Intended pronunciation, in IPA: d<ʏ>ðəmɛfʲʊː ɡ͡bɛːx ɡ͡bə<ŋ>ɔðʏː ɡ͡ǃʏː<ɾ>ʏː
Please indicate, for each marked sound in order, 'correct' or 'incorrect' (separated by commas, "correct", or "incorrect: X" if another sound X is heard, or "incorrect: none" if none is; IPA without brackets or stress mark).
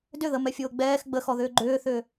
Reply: correct, incorrect: x, incorrect: θ